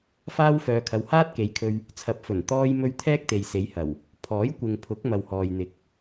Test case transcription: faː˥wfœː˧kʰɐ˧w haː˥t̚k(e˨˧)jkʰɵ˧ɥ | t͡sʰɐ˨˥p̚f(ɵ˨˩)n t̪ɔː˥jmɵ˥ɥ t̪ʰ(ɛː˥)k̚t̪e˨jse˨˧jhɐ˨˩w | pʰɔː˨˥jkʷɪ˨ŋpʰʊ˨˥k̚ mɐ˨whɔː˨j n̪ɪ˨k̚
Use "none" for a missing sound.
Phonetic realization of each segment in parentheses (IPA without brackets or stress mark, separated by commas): e˨˧, ɵ˨˩, ɛː˥